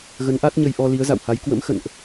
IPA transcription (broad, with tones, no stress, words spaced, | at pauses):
ɣə˨˦nʔa˦˥t̚ɲə˧jʔɔ˧ li˨˦ə̯za̰˧˨wha˨˦j kwə̰˧˥mxə̰˧˨nʔ